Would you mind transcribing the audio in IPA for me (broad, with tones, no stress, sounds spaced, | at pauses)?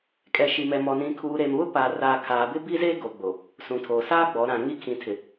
kʼ ɛ˨ ʃ i˨ m ɛ˨ m ɔ˨ n ĩ˨ kʰ uː˨ ɾ e˨ m β ʊ˦ p aː˨ r aː˨ kʰ aː˨ b ɪ˦ b i˦ z e˦ ɡ o˨ ɡ͡b o˨ | s ũ˨ tʰ oː˨ s aː˦ ɡ͡b ɔ˨˦ ɾ ã˨ ŋ i˦ kʰ ĩ˨ tʰ ɪ˨